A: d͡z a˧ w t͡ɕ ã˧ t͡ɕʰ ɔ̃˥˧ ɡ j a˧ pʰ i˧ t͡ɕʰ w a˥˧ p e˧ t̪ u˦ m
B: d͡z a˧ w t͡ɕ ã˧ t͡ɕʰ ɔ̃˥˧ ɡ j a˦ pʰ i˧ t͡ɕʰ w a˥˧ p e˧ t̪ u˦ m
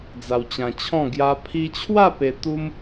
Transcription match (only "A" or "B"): B